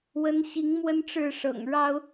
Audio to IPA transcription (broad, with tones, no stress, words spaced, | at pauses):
wə˨˦nɕi˨˦ŋ mwə˦nʈ͡ʂɻ̩˥˨ ʂɤ̰˨˩ŋ ɻɑ˦ʊ̯